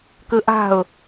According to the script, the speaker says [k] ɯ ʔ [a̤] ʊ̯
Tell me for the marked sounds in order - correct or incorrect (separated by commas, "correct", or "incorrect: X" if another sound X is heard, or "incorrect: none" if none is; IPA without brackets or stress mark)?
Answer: correct, correct